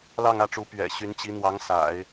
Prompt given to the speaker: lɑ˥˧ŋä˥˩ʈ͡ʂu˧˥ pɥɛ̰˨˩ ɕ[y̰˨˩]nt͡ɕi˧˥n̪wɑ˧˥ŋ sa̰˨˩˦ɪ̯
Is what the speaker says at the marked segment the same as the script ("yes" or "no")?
no